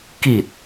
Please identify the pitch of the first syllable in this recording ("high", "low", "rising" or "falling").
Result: low